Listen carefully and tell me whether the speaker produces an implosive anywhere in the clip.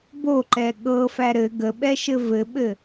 yes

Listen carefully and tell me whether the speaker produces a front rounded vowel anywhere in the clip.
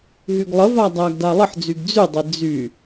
yes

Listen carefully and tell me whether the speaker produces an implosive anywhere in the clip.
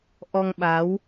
yes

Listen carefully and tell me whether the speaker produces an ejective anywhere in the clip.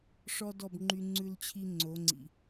no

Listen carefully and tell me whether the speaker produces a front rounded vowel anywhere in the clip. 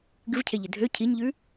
yes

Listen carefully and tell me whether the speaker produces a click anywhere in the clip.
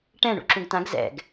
yes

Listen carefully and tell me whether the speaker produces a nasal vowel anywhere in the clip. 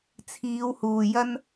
no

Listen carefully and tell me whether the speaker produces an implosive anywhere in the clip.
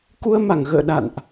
yes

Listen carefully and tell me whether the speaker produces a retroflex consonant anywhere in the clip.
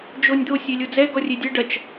yes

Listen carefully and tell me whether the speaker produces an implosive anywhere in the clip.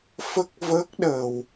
yes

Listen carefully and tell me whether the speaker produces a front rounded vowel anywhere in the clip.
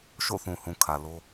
no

